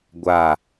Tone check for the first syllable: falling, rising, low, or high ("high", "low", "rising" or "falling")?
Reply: falling